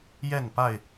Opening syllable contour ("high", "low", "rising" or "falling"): falling